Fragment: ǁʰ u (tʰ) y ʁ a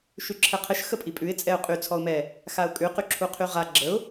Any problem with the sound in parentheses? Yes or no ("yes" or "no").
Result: yes